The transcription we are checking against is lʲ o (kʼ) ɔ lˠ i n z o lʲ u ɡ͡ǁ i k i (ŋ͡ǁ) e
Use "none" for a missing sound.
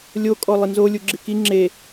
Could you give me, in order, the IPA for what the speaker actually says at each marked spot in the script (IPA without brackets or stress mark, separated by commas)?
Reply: kʼ, ŋ͡ǁ